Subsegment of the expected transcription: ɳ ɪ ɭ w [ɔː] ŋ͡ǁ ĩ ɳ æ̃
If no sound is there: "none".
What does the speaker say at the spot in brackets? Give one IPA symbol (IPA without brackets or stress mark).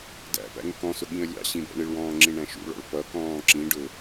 ɔ̃ː